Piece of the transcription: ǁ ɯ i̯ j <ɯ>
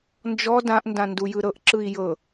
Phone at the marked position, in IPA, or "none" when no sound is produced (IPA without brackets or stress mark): ɤ